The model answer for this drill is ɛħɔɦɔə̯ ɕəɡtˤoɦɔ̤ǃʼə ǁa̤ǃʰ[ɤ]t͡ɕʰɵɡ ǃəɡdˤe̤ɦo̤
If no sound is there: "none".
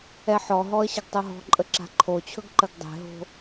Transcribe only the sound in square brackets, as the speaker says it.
o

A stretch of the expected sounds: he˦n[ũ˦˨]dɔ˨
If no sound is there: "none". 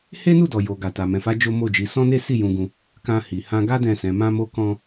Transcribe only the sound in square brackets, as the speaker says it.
u˦˨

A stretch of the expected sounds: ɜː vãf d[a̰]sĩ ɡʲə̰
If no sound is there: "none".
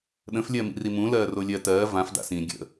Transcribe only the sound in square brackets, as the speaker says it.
a̰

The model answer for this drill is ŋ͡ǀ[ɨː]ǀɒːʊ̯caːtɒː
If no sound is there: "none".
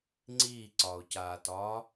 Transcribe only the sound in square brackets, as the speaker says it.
iː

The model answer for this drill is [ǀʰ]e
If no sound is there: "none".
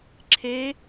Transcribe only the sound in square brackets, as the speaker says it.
ǁʰ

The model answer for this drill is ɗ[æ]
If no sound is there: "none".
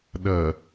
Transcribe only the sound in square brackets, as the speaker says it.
ɐ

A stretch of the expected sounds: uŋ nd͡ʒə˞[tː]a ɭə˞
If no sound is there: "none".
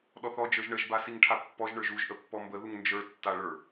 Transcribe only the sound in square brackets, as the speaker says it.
tː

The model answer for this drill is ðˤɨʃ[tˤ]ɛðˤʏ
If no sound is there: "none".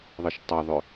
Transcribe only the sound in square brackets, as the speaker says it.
tˤ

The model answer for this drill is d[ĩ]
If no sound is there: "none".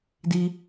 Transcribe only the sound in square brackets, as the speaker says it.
i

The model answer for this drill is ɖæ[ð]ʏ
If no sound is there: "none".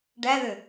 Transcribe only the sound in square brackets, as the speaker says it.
ð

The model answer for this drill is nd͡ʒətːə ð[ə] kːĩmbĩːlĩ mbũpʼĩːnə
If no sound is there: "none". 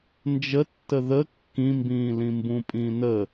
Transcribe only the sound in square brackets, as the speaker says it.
ə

